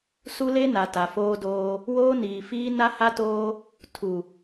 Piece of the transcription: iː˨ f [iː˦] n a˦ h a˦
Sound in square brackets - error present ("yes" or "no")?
no